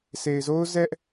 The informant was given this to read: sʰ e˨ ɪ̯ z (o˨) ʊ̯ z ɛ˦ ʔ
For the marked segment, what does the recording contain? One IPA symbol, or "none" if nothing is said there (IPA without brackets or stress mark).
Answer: o˦